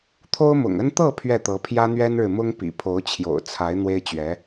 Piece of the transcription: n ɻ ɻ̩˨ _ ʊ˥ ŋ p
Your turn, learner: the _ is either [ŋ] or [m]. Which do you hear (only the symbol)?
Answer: m